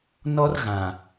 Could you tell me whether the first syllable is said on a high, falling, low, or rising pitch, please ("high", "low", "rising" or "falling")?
high